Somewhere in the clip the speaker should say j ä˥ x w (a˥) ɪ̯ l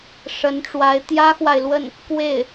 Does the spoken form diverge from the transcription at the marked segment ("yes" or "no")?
yes